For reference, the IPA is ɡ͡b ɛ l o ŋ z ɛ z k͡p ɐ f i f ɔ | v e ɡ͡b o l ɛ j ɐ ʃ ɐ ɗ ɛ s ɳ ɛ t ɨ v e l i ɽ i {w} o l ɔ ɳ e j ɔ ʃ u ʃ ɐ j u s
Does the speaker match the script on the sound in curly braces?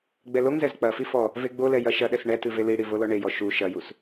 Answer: no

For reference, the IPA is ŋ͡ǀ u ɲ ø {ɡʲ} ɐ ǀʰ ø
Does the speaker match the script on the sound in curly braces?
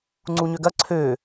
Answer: no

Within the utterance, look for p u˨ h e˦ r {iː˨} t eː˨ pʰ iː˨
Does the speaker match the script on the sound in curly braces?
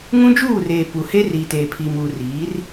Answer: yes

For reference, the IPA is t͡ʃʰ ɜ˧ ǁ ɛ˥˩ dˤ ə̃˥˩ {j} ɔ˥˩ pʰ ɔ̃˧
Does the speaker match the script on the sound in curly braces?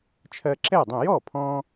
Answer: yes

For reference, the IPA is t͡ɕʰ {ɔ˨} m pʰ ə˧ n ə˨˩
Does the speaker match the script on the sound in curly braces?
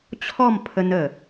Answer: no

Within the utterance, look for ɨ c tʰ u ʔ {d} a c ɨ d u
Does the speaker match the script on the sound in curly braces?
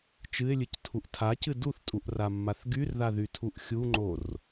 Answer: no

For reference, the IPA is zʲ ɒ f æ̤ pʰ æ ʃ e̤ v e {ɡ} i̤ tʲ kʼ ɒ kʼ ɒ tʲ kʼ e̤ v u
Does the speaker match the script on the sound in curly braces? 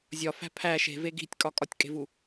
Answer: yes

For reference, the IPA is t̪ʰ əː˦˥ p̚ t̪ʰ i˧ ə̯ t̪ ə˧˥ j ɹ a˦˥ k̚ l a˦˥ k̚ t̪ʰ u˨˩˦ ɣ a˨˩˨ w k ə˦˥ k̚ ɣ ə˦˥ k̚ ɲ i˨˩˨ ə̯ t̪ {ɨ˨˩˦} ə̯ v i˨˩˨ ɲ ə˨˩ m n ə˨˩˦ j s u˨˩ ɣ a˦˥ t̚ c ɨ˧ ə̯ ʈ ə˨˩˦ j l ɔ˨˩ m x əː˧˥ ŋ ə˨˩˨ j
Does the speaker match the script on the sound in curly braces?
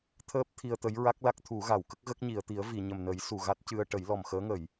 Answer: no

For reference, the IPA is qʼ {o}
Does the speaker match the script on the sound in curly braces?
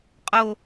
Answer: yes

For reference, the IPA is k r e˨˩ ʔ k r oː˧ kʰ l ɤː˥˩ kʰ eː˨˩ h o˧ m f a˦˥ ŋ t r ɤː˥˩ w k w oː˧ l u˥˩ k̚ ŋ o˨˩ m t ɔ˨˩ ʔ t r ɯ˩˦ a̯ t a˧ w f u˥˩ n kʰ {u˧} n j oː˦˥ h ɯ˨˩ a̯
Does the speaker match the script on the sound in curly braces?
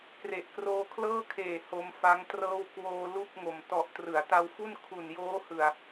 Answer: no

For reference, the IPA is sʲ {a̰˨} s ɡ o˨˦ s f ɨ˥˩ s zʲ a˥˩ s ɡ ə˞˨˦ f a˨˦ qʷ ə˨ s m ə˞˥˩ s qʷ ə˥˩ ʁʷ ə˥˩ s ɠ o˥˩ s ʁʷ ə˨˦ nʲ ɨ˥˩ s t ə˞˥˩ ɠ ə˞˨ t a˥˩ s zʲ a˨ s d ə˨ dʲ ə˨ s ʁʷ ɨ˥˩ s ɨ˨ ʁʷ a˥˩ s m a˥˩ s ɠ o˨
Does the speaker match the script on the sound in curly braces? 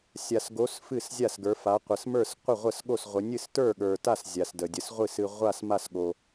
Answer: no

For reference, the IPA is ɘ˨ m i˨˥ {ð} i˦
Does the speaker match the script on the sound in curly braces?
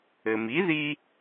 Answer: yes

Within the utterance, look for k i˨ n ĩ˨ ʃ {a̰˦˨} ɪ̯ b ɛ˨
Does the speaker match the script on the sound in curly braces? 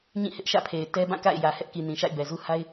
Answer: yes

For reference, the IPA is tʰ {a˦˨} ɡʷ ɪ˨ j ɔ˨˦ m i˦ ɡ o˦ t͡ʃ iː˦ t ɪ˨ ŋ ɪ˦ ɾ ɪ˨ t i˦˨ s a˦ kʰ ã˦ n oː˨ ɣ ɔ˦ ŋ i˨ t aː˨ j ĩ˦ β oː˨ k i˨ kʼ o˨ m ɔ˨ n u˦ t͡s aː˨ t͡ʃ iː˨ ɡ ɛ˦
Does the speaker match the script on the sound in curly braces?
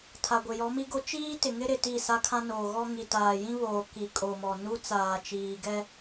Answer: no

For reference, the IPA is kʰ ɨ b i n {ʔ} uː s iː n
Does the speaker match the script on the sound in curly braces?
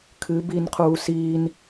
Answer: no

